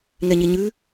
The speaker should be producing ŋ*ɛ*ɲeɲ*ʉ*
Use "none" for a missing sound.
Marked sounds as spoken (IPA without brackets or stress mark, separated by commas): ɛ, ʉ